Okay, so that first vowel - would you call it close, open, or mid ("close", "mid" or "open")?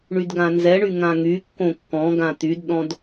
close